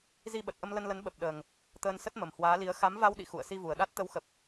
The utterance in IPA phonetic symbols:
zi˧ɓə˨˩t̚ʔə˧m lə˧nlə˨˦n ɓə˨˩p̚ɗəː˨˩ŋ | t̪əː˧nsə˦˥t̚mə˨˩m hwaː˨˦li˨˦ə̯ xa˨˦mva˧wɗḭ˧˨ xṵ˧˨ə̯si˧vu˨˩ə̯ɗa˦˥t̚ t̪ə˨˦wxə˨˩p̚

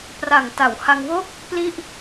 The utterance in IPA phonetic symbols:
pra˨˩ŋ ta˩˦w ha˧ŋwoː˥˩k̚ | pli˥˩ʔ

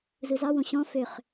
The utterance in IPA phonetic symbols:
zɯzɑwõ ɕɔ̃ føχ

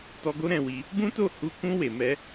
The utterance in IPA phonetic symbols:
tɔ˧ɡo˦ɾɛ̃˦˨wi˧ | bũ˦to˦˨ hu˧ kũ˧ we˨mɛ˧

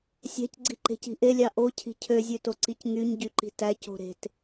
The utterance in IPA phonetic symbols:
sʲæ̤cɡ͡ǀiǃe̤ci̤ ʔelʲɑ ʔocʰi̤ cʰøzʲøtoǀic ŋyɲɟyǃi̤ tæco̤ ɾe̤t

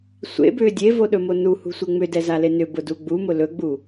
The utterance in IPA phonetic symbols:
sʷḛbʏː dʲevoɗɵmo nuhṳsʷe ŋ͡mʏdɛzale nʏbʊdu ɡ͡bumʊ lɵɡ͡bu

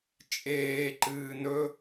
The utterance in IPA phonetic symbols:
t͡ʃʼeːǃɨː nɵ

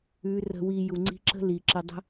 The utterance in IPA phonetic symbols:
ʉ˨˦ rə̤˨wi˨ ju˨ŋ͡ǀi̤˧ǁə̤˦ li˨ǁə˧ dˤə̤˦

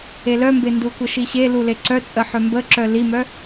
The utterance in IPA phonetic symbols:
elœmbe ndukʷəʃiɕe luleǀœt͡sʼə ħœmbəǁœ limœ

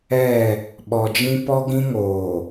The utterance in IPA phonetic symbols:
ɛ˦˨ | ɓɔ˨d͡ʒĩ˦ pɔ˦ɡĩ˦ŋoː˨

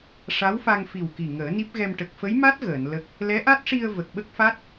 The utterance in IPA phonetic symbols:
ʂa˧˥wfa˧ŋ fi˨˩wki˨˩ ŋəː˨˩˦ni˦˥p̚ɣɛ˧m ʈə˨˩k̚fə˧˥jma˦˥t̚ ɣəː˨˩˨n lə˦˥k̚ | lɛ˧˥ʔa˦˥t̚ʂi˧ə̯ və˨˩k̚ɓə˦˥k̚fa˦˥t̚

